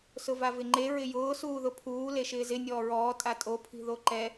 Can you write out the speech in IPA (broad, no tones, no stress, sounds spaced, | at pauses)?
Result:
s ʊ v a v ɪ ŋ͡ǃ e ɹ ɪ j ʊː s uː ð ʊ pʰ uː l e ʃ ɪː z ɪ nʲ ɔː ɹ ɔː tʼ a tʼ o pʰ i̤ ð o ǃ ɛ